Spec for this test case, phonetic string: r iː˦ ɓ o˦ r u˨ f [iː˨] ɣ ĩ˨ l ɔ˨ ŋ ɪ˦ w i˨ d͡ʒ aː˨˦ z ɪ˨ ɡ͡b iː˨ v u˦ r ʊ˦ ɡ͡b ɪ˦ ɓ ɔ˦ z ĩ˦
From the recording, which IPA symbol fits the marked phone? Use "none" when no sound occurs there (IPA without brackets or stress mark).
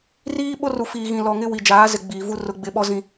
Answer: iː˨